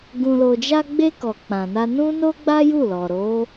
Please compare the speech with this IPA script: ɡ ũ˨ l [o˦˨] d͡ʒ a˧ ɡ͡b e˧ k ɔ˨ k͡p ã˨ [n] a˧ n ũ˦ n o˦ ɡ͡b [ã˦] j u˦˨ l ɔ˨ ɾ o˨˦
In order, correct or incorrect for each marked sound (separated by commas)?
incorrect, correct, incorrect